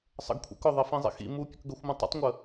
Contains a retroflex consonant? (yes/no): no